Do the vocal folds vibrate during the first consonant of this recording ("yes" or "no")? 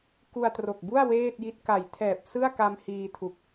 no